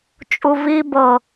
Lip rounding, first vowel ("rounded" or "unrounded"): rounded